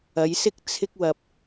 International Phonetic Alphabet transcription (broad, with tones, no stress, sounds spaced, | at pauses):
ɐ˨˧ j s ɪ˥ k̚ t͡sʰ ɪ˧ k̚ w ɐ˨ p̚